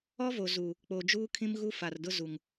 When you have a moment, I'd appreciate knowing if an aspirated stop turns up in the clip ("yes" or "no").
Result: yes